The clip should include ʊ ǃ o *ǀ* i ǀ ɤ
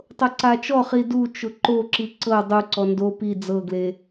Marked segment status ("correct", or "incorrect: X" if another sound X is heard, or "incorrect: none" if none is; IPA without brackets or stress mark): incorrect: ǁ